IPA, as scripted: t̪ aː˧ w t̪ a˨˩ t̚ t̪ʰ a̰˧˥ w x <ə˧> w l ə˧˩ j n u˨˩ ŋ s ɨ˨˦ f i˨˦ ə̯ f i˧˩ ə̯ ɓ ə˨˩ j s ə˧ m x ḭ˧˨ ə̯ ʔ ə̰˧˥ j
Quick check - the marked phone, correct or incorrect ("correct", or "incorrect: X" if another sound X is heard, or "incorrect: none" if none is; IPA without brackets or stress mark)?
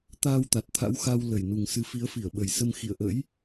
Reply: incorrect: a˧